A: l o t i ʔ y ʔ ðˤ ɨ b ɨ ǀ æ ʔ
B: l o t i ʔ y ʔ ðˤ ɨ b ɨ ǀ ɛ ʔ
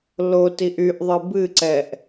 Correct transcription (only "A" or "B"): B